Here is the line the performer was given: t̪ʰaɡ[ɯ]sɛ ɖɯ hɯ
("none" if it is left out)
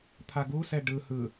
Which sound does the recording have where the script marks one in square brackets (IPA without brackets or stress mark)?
u